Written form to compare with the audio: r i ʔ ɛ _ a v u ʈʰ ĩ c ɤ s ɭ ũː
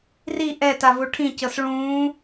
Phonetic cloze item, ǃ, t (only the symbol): t